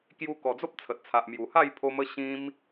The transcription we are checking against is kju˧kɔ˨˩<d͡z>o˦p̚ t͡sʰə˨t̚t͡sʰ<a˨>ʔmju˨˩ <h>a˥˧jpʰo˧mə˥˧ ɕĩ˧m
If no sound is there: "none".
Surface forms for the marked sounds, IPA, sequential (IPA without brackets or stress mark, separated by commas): d͡z, a˨, h